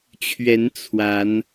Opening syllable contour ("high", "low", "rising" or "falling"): rising